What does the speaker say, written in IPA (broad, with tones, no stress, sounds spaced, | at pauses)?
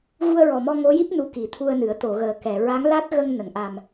ɣ u˧ ə̯ ɹ ɔ˨˩ m ɔ˧ ŋ o˧˥ j i˦˥ p̚ n u˧˥ k i˨˩˦ t̪ʰ u˧ ə̯ n ɨ˨˩˦ ə̯ t̪ o˨˩˨ ɣ əː˨˩ k ɛ˨˩˨ ɹ a˧˥ ŋ l a˦˥ t̚ ɣ ə˧ ŋ n ə˨˩˨ ŋ ʔ a˨˩ m